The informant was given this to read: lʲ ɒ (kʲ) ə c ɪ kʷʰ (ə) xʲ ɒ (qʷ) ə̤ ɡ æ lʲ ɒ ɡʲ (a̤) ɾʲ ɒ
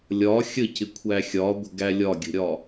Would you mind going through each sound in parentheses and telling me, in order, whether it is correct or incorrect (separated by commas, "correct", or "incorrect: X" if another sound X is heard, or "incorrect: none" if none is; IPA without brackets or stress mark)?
incorrect: xʲ, incorrect: æ, incorrect: ɡʷ, incorrect: ə̤